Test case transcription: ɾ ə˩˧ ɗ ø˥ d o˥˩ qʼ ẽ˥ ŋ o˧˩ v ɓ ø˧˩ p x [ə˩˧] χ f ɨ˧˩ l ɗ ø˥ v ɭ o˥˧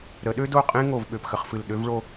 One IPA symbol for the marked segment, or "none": ə˩˧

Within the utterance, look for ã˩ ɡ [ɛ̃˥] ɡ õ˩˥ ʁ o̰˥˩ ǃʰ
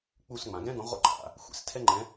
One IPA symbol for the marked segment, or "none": ɛ̃˥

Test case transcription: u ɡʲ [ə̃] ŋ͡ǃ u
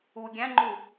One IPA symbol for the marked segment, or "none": æ̃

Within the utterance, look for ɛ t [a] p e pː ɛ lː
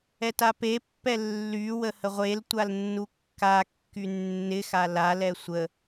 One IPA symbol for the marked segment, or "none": a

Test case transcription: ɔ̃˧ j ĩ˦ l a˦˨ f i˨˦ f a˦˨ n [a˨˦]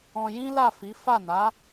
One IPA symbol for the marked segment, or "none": a˨˦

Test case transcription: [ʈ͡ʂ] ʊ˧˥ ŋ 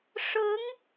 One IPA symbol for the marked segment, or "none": ʂ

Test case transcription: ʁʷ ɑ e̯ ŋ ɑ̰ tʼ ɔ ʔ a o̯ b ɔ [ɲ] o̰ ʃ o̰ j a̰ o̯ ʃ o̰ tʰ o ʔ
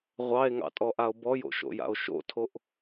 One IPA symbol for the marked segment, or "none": j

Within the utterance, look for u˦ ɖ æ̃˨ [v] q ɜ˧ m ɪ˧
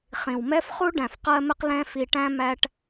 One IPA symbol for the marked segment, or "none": f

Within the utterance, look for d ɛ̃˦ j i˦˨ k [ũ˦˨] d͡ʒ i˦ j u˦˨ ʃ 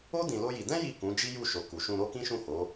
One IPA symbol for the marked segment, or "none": ũ˨˦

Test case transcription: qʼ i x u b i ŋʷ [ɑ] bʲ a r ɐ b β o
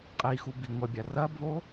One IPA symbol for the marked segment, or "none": ɐ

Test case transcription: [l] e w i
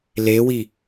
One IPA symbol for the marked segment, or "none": l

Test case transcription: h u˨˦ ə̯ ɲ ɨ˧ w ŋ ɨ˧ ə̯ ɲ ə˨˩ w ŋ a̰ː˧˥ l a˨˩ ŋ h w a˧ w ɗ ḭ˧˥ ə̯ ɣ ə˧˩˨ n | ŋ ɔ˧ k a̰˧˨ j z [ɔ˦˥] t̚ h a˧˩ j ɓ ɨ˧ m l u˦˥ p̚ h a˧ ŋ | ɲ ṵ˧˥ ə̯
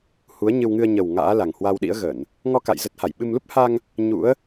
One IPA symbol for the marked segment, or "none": ə˦˥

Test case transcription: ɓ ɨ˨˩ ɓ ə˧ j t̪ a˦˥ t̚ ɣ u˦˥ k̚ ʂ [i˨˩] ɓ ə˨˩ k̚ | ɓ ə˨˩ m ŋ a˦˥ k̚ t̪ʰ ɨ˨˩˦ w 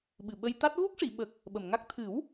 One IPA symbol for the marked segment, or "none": i˨˩˨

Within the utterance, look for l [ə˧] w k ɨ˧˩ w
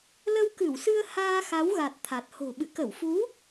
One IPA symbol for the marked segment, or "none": ə˧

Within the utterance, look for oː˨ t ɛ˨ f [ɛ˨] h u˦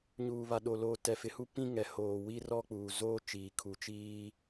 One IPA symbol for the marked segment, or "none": ɪ˨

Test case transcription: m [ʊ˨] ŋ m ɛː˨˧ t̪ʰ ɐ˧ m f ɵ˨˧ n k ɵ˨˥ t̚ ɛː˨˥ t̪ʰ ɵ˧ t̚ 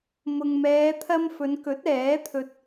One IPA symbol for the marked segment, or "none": ʊ˨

